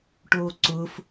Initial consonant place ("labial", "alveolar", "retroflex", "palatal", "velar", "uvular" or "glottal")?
retroflex